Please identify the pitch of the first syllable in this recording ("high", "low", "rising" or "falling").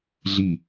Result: falling